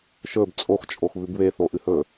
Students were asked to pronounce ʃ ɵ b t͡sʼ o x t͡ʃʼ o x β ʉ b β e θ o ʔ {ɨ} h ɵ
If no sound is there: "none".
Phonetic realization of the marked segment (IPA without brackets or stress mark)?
ɨ